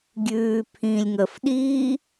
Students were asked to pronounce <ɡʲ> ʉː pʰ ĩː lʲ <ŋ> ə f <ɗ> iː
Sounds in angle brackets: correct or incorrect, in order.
correct, correct, correct

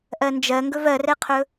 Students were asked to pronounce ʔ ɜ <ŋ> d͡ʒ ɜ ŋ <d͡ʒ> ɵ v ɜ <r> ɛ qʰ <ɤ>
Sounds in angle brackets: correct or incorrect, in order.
incorrect: n, incorrect: ɡ, correct, incorrect: ɵ

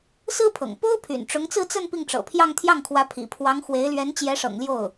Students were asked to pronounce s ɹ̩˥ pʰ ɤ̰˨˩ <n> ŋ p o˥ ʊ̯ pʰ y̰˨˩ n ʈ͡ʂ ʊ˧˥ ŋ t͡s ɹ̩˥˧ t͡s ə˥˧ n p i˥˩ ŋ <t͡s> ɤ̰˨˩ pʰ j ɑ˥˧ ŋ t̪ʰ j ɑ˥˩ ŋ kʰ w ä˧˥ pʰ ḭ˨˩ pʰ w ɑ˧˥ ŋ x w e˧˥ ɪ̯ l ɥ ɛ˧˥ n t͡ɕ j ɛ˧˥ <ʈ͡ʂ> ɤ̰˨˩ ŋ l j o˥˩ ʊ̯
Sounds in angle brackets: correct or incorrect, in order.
incorrect: none, incorrect: ʈ͡ʂ, incorrect: ʂ

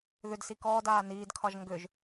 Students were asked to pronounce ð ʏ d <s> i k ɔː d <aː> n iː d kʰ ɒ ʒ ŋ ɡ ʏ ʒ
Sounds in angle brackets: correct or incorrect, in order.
correct, correct

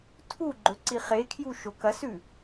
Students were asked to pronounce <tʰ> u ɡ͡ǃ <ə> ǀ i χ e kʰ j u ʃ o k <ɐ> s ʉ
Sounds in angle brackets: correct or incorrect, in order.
correct, incorrect: ɵ, correct

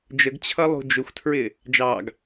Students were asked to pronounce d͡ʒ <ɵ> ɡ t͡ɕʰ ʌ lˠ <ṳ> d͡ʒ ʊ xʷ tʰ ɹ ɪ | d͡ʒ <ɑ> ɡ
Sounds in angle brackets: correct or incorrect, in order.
incorrect: ə, correct, correct

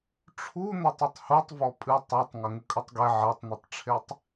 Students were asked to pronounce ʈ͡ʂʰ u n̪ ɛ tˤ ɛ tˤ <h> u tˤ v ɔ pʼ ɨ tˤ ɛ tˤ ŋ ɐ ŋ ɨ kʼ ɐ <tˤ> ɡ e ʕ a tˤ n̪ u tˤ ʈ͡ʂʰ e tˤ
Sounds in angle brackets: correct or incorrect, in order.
correct, correct

